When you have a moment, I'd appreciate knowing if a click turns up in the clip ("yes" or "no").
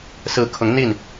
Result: no